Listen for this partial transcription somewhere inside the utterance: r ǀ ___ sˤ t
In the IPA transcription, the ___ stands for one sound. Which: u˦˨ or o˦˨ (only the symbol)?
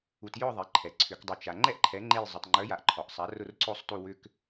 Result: o˦˨